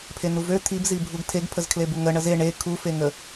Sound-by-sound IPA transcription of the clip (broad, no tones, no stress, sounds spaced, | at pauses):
pʰ e n̪ u v ø t̪ʰ i b z i bʱ u ɡ tʰ e ɡ pʰ ə z kʰ l e b u ŋ ə ɳ ə z e ɳ e kʰ u f e ŋ ə